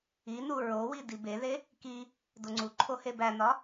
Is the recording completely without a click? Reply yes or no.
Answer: no